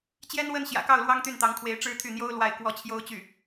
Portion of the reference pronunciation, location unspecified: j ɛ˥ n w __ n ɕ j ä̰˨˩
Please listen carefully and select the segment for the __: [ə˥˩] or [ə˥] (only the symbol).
ə˥